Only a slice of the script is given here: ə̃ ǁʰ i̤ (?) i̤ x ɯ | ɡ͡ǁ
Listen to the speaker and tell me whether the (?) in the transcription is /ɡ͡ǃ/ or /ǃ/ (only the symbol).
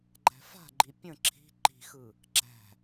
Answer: ǃ